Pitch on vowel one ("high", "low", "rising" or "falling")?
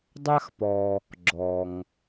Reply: high